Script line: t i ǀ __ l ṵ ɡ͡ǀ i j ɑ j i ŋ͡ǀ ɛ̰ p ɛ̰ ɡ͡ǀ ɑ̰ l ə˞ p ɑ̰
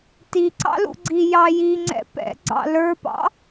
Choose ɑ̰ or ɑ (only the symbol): ɑ̰